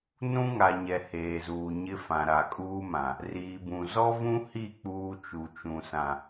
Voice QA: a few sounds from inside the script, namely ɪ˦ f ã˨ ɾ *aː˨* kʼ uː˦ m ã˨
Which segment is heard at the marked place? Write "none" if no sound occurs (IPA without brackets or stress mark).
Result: a˨